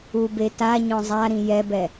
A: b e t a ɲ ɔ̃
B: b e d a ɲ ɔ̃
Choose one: A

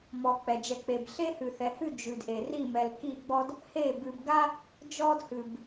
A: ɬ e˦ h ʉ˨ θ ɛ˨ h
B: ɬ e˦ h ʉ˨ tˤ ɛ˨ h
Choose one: A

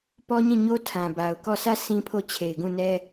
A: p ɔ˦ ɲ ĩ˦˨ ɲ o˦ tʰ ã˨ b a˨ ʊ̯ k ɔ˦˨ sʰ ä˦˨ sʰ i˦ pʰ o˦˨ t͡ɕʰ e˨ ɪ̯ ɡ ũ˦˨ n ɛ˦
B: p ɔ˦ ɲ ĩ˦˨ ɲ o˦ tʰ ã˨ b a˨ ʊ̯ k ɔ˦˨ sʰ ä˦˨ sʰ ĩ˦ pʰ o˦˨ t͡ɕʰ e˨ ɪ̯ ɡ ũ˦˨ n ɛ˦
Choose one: B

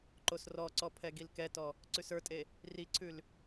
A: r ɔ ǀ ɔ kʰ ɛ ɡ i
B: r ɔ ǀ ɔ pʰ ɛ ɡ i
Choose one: B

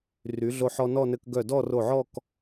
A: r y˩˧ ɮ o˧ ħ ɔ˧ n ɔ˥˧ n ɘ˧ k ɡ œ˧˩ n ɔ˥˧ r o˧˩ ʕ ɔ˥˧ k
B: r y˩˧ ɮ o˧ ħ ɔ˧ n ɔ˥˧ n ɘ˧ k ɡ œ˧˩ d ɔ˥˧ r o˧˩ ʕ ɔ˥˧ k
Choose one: B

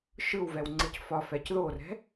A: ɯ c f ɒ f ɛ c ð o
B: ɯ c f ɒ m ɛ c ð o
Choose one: A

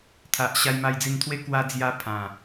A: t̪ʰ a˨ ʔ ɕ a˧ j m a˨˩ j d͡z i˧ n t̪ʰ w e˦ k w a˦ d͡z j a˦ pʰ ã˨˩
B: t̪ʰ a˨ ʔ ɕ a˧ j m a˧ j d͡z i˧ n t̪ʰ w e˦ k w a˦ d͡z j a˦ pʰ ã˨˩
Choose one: B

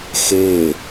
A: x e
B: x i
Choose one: A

